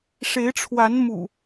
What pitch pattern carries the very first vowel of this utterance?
rising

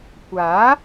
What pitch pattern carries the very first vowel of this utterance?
rising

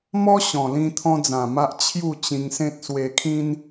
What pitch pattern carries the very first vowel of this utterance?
high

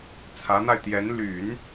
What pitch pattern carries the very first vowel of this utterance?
rising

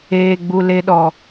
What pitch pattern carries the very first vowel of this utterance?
low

